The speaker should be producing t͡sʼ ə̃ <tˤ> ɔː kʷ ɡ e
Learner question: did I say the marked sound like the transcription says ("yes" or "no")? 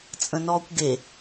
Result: no